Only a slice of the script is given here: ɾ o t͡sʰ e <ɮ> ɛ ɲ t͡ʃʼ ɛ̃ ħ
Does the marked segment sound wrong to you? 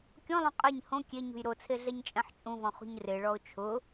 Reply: no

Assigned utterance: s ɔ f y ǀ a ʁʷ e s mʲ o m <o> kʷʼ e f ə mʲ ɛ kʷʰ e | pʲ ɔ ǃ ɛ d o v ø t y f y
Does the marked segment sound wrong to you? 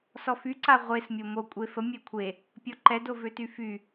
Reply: no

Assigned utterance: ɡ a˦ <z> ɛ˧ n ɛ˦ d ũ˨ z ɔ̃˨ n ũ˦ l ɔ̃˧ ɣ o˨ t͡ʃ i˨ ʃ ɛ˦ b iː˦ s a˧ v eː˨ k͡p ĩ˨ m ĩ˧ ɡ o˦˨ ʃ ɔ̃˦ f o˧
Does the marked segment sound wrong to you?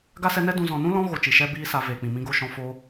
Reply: yes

